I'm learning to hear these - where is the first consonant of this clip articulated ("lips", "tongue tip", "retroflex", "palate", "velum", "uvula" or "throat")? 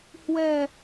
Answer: throat